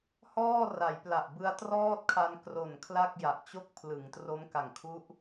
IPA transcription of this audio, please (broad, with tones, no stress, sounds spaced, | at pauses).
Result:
h ɔː˥˩ r a˩˦ j p l a˨˩ ʔ b ɯ˧ a̯ t r ɔː˥˩ t̚ kʰ a˧ n k r o˨˩ n kʰ l a˥˩ k̚ j a˨˩ ʔ t͡ɕ o˥˩ k̚ pʰ l ɯ˩˦ ŋ t r o˦˥ m k a˨˩ ŋ kʰ u˦˥ ʔ